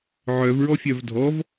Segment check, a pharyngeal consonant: present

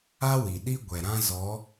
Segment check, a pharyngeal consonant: absent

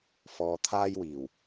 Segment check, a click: absent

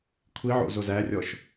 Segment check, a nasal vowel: absent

